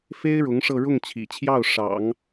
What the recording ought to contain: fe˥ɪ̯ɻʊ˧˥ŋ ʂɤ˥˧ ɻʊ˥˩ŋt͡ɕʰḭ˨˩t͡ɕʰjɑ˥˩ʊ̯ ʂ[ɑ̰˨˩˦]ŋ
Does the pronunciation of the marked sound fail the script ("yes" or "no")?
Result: no